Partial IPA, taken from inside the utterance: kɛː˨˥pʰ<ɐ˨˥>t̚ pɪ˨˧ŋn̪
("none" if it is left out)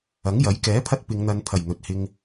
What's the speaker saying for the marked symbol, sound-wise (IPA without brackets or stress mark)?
ɐ˧